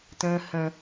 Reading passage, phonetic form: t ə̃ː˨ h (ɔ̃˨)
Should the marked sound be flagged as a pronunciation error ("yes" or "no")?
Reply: yes